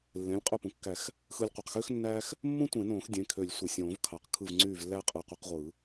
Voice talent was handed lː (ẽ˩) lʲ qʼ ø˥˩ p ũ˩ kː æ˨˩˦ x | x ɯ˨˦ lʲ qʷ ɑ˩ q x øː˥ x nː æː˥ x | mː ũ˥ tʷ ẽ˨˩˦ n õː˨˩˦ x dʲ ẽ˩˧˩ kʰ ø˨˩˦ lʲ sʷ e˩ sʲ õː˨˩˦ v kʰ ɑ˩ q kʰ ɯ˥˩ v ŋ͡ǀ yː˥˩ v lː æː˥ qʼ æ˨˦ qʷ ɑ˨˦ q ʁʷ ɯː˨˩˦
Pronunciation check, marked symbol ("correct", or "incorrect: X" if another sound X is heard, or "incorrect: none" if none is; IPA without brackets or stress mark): incorrect: ẽ˩˧˩